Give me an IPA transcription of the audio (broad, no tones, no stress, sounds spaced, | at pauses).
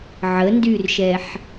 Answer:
ʕ ə n d y r ʃ ɛ ħ